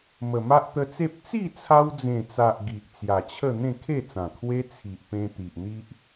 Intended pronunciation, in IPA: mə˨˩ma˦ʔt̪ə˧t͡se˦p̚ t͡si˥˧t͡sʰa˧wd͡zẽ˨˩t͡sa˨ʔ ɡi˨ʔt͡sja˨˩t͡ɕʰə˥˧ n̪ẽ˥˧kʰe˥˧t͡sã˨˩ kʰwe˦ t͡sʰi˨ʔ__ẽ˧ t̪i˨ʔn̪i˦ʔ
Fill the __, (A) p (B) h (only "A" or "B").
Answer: A